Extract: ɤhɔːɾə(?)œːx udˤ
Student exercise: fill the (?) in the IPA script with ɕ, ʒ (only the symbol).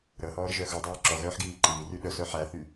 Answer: ʒ